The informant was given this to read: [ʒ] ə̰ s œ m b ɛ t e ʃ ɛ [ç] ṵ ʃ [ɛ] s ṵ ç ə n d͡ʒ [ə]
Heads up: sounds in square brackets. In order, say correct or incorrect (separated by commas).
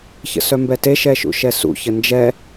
incorrect, incorrect, correct, incorrect